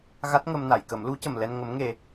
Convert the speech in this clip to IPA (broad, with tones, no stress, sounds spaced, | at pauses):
ɣ a˦˥ t̚ ŋ ə˧ m n a˨˩˨ j k ə˨˩˦ m l u˧˥ c ə˨˩ m l ɛ˧ n ŋ ə˧˥ m ŋ e˧